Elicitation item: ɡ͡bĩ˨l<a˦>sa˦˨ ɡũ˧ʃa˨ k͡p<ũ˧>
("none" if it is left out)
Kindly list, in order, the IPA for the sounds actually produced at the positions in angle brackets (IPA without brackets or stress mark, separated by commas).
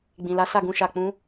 a˨˦, ũ˨˦